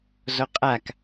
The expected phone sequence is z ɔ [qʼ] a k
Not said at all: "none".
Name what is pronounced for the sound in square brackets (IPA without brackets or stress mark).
qʼ